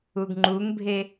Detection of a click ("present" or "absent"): present